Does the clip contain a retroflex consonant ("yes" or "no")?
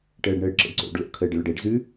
yes